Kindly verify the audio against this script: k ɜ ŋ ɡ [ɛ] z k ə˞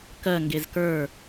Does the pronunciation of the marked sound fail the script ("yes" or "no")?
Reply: yes